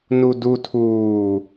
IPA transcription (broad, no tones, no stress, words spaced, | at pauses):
nudu tʰuː